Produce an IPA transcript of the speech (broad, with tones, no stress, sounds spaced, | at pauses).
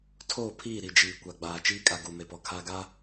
tʰ oː˦˨ pʰ iː˦˨ ɾ i˨ d͡ʒ iː˨ kʷ a˨ ɡ͡b aː˨ t͡ʃ iː˦ kʼ a˨ ɡ uː˨ m e˨ p ɔ˨ kʰ aː˦ ɡ a˦